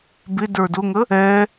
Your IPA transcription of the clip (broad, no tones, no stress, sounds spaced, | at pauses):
b ɪ d ə˞ d ʊ ŋ ə | ɛ